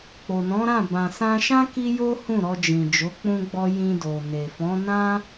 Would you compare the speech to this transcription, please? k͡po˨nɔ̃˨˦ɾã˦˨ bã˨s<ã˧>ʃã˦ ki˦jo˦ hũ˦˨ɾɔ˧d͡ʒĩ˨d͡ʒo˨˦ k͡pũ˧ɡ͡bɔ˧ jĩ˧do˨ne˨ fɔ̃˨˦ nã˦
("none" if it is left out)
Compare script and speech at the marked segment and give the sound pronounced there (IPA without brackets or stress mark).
ã˧